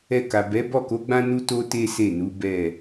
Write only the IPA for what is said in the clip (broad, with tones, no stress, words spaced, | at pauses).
ɛ˧ka˨ bɛ˨˦ bɔ˦˨ko˨˦ɡ͡bã˦ nu˦to˦ te˦se˦˨nu˨˦ bɛ˦˨